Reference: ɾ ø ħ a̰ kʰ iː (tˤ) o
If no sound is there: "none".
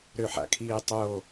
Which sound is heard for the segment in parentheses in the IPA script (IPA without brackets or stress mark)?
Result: tˤ